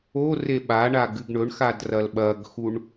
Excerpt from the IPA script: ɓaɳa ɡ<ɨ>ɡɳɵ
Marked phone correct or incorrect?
correct